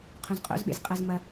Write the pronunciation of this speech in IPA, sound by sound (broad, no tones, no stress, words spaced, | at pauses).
qʰũzqʼo̰zɓḛz qʼɐz mɐ